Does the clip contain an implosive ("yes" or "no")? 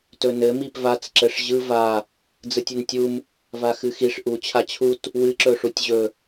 no